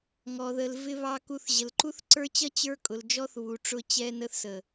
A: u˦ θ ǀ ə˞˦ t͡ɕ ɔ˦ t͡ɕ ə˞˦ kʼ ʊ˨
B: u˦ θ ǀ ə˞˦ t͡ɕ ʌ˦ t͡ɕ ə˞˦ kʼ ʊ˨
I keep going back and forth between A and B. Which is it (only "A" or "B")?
B